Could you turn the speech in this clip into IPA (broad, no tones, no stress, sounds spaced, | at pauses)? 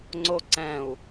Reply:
ŋ͡ǀ o ǀ ɛ̃ u̯